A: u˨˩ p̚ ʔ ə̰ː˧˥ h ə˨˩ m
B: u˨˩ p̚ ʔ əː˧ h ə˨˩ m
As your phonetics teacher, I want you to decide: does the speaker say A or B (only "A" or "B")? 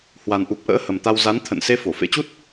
A